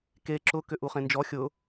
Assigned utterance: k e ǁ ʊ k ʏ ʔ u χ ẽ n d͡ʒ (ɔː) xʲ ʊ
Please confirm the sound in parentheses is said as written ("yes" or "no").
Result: no